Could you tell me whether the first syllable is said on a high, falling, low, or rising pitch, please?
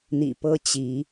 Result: low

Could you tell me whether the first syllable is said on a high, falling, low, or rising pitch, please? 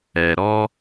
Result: low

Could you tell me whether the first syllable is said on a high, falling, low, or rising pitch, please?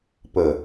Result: low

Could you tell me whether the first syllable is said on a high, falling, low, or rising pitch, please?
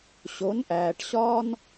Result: rising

